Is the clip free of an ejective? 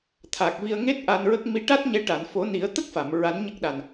yes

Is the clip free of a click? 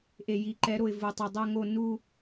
no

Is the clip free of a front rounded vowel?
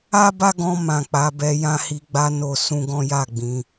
yes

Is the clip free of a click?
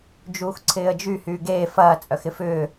no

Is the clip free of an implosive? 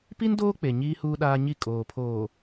no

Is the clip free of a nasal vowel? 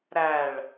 yes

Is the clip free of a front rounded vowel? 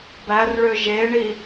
no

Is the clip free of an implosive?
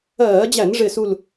yes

